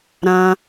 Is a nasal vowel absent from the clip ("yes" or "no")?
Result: no